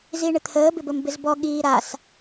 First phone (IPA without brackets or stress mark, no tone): z